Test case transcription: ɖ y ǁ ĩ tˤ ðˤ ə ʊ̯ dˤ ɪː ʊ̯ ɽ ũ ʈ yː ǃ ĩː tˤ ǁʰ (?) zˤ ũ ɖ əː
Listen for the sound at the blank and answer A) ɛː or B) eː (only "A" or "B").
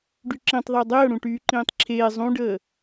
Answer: B